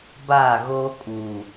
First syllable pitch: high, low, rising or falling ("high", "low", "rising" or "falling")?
falling